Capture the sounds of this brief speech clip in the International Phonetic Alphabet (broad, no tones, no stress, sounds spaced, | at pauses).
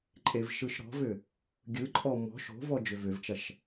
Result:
ǃʼ e v ʃ ɯ ʃ ɾ ɔ̤ v ʏ | ɡʲ ɯ ǃʼ ɔ m ɔ̤ ʃ o̤ v ɔ d͡ʒ ʏ v ʏ v t͡ʃ ɐ ʃ